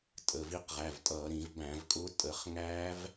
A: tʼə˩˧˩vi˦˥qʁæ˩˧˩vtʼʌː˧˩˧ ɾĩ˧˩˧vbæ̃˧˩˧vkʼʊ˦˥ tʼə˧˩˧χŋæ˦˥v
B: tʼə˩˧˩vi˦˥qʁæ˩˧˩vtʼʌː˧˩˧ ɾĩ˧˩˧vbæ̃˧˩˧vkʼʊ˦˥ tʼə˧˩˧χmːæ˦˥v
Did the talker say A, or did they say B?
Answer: A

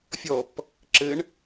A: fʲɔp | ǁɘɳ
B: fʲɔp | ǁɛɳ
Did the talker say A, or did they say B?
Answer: A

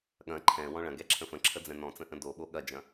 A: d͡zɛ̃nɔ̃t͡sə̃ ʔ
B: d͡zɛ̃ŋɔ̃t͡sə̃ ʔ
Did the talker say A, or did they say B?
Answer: A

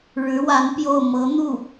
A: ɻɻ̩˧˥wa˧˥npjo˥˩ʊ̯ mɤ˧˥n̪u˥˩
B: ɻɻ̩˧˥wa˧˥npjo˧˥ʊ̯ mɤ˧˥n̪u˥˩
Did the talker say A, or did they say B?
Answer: A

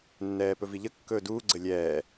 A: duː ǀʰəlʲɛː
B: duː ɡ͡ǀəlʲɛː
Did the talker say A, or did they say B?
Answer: B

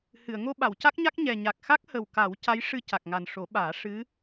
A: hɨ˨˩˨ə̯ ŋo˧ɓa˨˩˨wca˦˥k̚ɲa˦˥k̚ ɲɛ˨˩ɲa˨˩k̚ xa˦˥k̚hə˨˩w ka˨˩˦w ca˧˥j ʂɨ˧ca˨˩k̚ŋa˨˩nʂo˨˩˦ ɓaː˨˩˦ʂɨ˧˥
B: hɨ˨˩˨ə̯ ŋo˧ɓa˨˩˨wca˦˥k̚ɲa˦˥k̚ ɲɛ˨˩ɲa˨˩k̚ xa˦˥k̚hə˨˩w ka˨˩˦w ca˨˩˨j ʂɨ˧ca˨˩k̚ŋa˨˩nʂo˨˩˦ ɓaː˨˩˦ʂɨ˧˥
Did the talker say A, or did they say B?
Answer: A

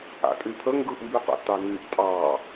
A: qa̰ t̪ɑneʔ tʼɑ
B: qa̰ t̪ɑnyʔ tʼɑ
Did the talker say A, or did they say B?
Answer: B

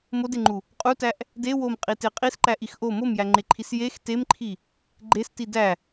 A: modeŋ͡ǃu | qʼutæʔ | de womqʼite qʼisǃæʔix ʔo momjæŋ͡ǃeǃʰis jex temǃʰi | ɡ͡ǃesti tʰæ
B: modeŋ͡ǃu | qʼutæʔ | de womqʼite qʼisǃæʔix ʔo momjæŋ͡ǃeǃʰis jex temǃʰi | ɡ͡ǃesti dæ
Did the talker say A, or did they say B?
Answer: B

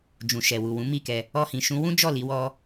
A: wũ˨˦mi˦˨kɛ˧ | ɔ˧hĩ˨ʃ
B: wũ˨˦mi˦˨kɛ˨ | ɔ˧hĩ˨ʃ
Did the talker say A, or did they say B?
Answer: A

